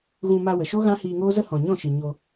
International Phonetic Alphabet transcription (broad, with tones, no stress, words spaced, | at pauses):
ɣũ˧ma˧wə˨ʃo˦ ɣã˦ hiː˧ŋoː˦zə˦ hɔ̃˨ɲɔ̃˦˨ʃɨ˨ ɲo˧